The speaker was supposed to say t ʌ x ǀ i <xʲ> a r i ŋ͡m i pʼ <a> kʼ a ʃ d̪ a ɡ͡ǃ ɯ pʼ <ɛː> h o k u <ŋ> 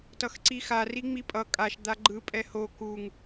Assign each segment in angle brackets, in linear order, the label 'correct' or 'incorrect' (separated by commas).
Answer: incorrect, incorrect, incorrect, correct